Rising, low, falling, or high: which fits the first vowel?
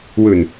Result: low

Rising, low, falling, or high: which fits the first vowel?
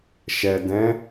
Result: low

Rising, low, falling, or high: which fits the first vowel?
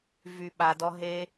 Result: low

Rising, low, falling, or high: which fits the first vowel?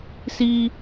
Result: low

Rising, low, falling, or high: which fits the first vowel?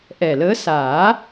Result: low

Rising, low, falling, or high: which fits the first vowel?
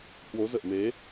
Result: rising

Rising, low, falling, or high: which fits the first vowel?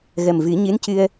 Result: low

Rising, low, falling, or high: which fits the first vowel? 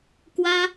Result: high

